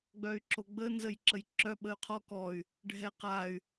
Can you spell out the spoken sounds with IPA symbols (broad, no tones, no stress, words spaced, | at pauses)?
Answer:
ɡ͡bœy̯ǁoɡ͡bə nzəjǁəjǁœ ɓəy̯qʰɔ kɔy̯ | ɖʱɛqay̯